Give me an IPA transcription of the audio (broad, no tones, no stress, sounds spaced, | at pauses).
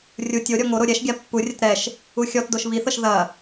rʲ u tʲ o ɾʲ ɔ ŋ o ɾ o ɾʲ ɛ ʃ ɡʲ a pː u rʲ ɐ t ɾ ɛ ʃ | u xʲ ɔ t d o ʃ β i θ ɤ ʃ ð ɐ